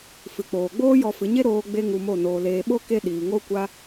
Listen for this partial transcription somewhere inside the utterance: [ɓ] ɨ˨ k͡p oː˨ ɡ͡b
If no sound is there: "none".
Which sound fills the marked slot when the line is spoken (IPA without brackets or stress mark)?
f